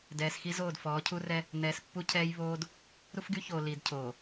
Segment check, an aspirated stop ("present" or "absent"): present